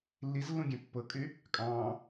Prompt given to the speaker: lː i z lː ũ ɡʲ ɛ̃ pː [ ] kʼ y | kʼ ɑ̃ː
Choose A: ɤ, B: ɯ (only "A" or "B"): A